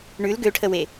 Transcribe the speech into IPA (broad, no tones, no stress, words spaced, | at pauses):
ɳʉl ɡøʈʰəwe